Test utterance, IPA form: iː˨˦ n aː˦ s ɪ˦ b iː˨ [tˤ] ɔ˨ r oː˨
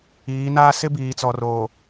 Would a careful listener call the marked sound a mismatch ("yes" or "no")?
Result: yes